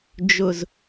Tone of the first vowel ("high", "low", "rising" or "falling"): low